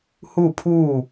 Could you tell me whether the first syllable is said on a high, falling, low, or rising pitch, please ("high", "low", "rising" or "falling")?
falling